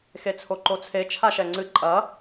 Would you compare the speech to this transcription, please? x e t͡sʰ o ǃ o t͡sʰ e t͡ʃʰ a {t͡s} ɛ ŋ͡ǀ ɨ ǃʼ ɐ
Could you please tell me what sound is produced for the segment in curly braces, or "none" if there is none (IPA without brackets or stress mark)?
ʃ